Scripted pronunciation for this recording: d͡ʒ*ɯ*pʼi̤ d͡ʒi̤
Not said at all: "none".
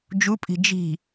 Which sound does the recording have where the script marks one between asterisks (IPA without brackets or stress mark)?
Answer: u